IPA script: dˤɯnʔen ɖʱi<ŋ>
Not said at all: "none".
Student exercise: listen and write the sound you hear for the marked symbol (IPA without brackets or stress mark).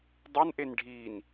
n